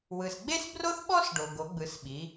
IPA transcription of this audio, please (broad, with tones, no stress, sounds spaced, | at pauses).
w ɯ˩ s ɡ͡b e˥ s b r o˥ θ ɓ ɔ˥ s ɖ o˩ ɡ o˩˧ ɡ͡b ɯ˩˧ s ɓ i˩˧